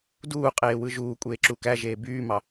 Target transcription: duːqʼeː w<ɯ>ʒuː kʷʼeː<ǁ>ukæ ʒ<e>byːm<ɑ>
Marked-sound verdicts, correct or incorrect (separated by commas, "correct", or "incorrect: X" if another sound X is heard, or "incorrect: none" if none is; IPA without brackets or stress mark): correct, correct, incorrect: eː, correct